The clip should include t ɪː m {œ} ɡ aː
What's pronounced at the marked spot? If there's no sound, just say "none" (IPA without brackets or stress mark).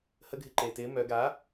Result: œ